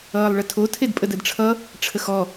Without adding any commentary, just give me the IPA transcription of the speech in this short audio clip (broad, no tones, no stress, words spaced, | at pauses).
ʌːlˠɭətʰo tʰedpʼədədʈ͡ʂʰʌ | ʈ͡ʂʰəxɔ